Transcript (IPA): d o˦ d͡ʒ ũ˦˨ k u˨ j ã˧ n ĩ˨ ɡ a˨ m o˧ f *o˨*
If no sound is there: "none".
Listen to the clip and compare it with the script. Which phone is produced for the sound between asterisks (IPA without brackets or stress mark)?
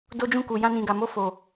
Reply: o˨